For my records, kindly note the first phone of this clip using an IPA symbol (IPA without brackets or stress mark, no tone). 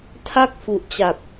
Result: tʰ